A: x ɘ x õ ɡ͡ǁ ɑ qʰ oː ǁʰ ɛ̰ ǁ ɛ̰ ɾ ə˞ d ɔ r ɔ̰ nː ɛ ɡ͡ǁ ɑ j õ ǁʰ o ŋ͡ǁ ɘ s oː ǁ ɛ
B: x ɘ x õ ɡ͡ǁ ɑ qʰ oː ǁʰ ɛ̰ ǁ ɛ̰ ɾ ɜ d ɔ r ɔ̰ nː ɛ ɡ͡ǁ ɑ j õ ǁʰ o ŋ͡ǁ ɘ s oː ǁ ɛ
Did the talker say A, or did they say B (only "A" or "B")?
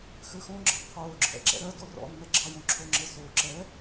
B